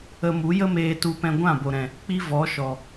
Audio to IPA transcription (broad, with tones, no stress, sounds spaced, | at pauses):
ə˧ m u˨˦ j ə˦ m eː˧ t u˧ p ɛ̃˧ ɡʷ ã˦˨ b o˨ ɾ ɛ̃˨ | k͡p i˦ v ɔ˨˦ ʃ ɔ˨